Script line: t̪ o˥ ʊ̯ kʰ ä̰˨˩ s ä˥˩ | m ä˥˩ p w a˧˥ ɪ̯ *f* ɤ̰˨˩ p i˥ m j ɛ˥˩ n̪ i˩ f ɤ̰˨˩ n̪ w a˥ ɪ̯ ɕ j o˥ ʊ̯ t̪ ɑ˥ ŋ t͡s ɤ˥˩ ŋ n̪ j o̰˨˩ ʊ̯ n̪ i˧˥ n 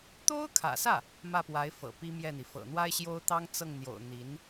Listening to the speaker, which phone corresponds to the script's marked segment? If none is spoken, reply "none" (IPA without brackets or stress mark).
f